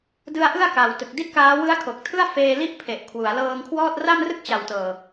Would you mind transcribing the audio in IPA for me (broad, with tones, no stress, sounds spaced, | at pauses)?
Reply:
d ɯ˦˥ a̯ ʔ ɯ˥˩ a̯ k a˨˩ w t ɯ˨˩ k̚ d i˥˩ t̚ k aː˦˥ w ɯ˦˥ a̯ kʰ o˨˩ k̚ tʰ ɯ˥˩ a̯ f eː˧ l i˥˩ ʔ pʰ e˨˩ ʔ kʰ w u˩˦ a̯ l ɤː˧ ŋ kʰ w ɔː˥˩ t̚ r a˥˩ m r ɯ˥˩ k̚ t͡ɕ a˨˩ w t ɤː˨˩